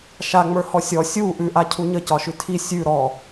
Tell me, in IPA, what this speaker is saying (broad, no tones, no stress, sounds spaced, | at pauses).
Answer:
ʃ a ŋ͡m ə˞ h ɔ sʲ ɔ sʲ u ʔ ʉ ʔ a cʰ u ɲ ə c ɒ ʃ ʉ tʰ i sʲ ʉ ɾ ɔ